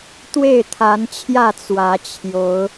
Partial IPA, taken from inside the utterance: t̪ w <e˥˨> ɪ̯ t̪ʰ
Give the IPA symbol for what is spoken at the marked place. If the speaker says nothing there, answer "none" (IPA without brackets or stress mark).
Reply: e˥˨